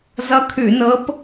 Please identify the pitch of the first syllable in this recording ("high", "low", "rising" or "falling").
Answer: rising